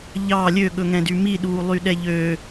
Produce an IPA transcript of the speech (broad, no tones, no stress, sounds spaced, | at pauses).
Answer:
ʎ ɑ lʲ ø ɠ ɵ ŋ ɛ̃ d y m i ɗ uː lˠ y ɗ ɛ ʎ ø